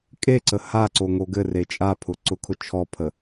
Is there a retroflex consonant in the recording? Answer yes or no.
no